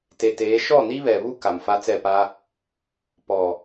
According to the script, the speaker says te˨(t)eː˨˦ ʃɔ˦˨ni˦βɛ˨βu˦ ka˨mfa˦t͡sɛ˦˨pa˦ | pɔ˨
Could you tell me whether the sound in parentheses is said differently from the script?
no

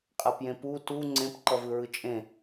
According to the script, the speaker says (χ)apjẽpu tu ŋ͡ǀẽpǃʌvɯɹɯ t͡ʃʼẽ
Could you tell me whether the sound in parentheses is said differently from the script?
yes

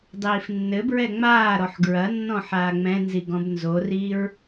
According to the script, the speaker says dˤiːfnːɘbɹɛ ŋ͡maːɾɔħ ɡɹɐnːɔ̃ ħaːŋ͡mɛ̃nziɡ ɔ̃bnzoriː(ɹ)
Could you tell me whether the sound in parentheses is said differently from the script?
no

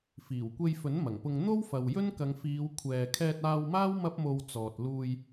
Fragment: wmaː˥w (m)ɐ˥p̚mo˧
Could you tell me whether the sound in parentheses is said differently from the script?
no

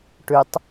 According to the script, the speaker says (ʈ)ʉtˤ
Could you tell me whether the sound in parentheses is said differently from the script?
no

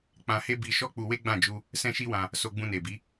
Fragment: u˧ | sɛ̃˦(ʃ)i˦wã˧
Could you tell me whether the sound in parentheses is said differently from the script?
no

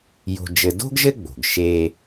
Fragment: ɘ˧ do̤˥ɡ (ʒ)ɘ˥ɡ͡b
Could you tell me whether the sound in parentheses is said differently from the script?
no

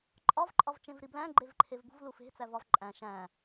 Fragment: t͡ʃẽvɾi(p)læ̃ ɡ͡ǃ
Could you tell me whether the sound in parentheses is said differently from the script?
yes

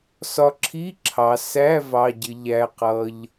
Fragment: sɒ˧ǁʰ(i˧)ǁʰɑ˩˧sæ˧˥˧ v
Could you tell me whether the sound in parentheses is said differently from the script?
yes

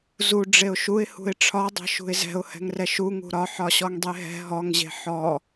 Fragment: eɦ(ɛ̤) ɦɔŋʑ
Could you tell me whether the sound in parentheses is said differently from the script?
no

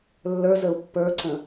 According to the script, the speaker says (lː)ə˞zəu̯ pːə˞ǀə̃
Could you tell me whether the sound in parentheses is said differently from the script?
no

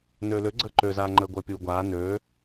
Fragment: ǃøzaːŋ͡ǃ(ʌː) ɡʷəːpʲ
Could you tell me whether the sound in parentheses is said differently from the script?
yes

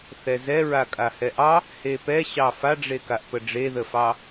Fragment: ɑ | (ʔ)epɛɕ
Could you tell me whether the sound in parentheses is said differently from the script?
yes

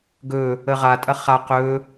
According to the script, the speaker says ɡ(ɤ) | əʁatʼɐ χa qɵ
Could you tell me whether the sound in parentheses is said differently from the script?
yes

